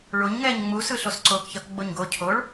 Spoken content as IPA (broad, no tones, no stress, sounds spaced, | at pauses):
ɭ o ɲ ŋ ɛː ɲ ŋ͡m u s ɯ ɬ o s ǀ oː k ç ʌ k ɡ͡b o ɲ ɡ o cʰ o ɭ